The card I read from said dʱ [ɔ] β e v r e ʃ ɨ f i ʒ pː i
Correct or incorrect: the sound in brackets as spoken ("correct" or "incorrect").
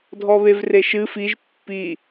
correct